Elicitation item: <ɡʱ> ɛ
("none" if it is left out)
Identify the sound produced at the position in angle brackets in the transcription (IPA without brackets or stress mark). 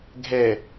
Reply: ɡʱ